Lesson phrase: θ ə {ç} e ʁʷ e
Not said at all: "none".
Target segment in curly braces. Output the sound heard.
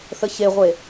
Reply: ç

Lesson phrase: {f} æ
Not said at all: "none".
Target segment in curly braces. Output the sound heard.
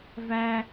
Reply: v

